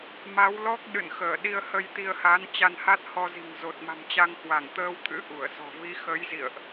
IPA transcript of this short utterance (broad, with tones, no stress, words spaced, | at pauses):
ma˨˦wlɔ˦˥k̚ ɗɨ̰˧˨nxəː˧˩ɗi˧ə̯ hə˧jt̪i˧ə̯ha˨˦n t͡ɕa˧nha˦˥t̚hɔ˧zi̤˨˩ŋ zo˨˩t̚ma̤˨˩mt͡ɕa˧ŋ hwa˧˩ŋt̪əː˧wt̪ʰɨ̰˧˥ ʔu˧˩ə̯sɔ̤˨˩ vi˨˦xə˨˦jzḭ˧˨ə̯ʔ